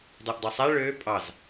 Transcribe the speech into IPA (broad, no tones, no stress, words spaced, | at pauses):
dˤɛʔdˤœsˤæ ɭøː pʼɑz